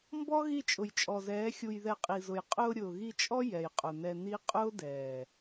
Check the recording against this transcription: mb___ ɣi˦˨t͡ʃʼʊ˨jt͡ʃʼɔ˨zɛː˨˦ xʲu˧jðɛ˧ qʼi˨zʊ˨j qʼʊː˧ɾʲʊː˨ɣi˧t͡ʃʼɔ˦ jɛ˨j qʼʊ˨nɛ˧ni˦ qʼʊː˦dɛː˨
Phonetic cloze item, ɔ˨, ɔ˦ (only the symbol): ɔ˦